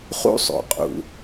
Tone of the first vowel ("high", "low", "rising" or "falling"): high